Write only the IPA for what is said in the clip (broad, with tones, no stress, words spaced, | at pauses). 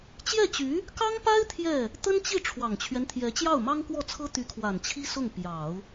t͡ɕjɛ˥˩t͡ɕy˧˥ | kɑ˥ŋpa˥ɪ̯ t̪ʰjɛ˥˩ | t̪ə˥nt͡ɕi˥˩ ʈ͡ʂʰwɑ˨˩ŋt͡ɕʰɥɛ˦nt̪ʰjɛ˧˥ t͡ɕjɑ˥˩ʊ̯mɑ˥ŋkwɔ˥˩t͡sʰɤ˥ t̪y˧˥kʰwa˨˩nt͡ɕʰi˥ sʊ˥˩ŋ pjɑ˨˩˦ʊ̯